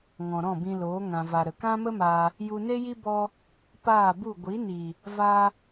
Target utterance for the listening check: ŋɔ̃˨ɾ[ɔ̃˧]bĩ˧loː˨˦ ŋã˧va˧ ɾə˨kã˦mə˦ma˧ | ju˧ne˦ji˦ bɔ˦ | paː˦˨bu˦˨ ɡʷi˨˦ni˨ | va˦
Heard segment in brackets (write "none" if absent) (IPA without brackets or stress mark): ɔ̃˦˨